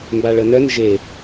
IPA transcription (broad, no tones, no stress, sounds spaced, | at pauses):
m b a ɭ ə n œ n ʒ e